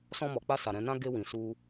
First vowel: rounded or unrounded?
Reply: rounded